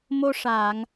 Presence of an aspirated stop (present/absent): absent